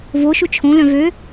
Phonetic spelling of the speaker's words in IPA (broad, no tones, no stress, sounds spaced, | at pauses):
v o ʃ u t͡ʃʰ õ l œ̃ v ø